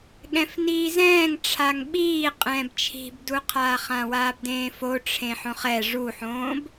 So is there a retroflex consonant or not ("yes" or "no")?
yes